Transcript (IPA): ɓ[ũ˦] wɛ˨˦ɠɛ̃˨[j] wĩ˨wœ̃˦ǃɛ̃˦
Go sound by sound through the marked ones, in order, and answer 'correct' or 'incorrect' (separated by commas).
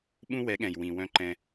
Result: correct, correct